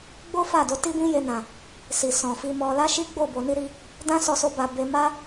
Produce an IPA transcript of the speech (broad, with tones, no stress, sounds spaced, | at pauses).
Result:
ɡ͡b o˦ f a˦˨ d o˧ t i˦ b ĩ˦ j e˧ n ã˨ | s i˨ s ɔ̃˨ f i˧ m ɔ˧ l a˦ ʃ i˦ ɡ͡b o˦˨ b o˧ n i˦ ɾ i˧ | d ã˦ s ɔ˦ s o˦ b a˧ b e˧ m a˦